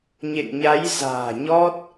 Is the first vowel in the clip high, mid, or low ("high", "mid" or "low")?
mid